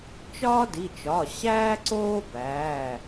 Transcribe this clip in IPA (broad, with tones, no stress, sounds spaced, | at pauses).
t͡ʃ ɒː˥ d i˩˧˩ t͡ʃ ɒ˩˧˩ ɕ æː˥ ǀ oː˥ b æː˩˧˩